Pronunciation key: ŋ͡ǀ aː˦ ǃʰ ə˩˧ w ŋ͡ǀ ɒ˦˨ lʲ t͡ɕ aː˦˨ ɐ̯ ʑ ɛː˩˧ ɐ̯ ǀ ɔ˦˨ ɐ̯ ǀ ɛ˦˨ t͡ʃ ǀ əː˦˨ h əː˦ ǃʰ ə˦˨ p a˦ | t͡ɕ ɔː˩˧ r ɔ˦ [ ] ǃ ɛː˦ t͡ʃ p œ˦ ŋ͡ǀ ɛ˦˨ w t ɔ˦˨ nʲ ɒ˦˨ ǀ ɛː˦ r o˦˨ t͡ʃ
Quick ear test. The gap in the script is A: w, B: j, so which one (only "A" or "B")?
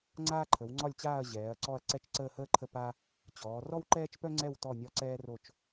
A